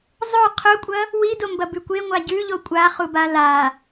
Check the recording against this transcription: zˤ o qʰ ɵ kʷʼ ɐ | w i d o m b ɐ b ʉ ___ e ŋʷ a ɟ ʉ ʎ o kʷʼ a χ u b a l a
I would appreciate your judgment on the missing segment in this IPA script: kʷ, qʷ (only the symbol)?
kʷ